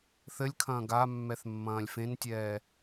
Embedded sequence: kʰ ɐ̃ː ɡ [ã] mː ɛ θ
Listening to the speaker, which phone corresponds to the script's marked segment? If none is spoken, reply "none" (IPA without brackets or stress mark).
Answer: a